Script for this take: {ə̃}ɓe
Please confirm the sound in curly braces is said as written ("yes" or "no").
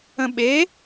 yes